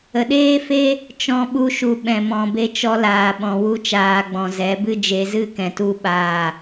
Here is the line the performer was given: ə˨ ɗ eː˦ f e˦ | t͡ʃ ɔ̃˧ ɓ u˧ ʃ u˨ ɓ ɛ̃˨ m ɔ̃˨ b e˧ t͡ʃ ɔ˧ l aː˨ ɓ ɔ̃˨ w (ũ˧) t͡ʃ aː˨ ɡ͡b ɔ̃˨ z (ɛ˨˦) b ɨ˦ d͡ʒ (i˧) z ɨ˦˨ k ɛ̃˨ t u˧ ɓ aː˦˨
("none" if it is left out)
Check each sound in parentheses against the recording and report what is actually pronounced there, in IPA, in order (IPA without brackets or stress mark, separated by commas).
u˧, ɛ˨˦, e˧